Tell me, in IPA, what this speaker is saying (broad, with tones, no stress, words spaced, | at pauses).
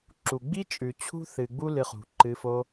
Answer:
ǁu˨ɡ͡bi˦t͡ʃʼʉ˨ t͡ɕʰṳ˦θɨ˨ɡ͡bu˦ lɨ˧χṳ˨ǃɨ˧fo˦